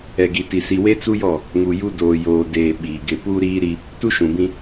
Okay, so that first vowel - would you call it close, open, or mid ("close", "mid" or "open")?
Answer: mid